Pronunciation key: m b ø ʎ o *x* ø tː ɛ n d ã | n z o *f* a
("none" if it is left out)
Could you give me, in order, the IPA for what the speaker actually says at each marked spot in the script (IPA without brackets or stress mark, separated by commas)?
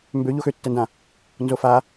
x, f